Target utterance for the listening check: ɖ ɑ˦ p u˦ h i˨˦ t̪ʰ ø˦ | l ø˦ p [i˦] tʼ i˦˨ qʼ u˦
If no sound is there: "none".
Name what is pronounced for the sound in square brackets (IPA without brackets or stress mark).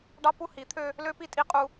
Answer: i˦